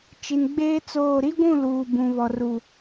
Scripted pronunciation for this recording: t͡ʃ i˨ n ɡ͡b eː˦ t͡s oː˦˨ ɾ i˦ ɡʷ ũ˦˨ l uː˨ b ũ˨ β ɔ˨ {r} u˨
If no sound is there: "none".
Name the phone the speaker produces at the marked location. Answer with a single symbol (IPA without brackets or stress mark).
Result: r